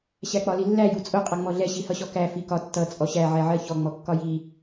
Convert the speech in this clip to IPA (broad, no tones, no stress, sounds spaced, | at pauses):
ɕ æ k͡p ɒ l i lː æ j u t͡sʼ ʊ qʼ ʌ ŋ͡m ɔ ɮ ɛ ɕ i h ʌ ɕ ɔ k æ f i k ɒ tː ʌ t͡sʼ ɔ ɕ æ ʕ ɛ ʕ ɜ ç ɔ ŋ͡m ɔ kː ɒ j i